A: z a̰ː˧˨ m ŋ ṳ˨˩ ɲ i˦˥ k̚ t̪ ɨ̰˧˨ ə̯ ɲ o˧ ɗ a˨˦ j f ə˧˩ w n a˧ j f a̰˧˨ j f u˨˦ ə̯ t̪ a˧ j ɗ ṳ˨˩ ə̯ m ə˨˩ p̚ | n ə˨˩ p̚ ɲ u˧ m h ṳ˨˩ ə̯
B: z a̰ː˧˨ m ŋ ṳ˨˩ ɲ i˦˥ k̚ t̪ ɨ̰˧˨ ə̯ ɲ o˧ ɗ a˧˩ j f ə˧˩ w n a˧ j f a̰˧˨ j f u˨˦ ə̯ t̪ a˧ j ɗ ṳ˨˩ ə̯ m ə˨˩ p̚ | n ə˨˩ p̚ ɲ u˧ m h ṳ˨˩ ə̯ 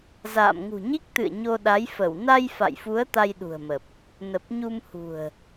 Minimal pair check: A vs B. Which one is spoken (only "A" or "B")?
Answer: A